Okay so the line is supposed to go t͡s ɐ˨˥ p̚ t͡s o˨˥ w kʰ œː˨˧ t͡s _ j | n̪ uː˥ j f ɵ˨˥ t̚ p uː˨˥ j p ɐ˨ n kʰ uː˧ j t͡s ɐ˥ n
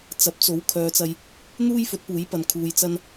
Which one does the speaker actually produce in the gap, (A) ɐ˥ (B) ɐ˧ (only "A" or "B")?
B